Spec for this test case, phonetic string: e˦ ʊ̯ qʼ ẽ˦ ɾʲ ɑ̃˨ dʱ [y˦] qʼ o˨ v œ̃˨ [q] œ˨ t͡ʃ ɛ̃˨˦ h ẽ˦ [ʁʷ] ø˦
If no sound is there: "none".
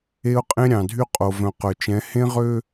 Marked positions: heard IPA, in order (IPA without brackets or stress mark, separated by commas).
y˦, q, ʁ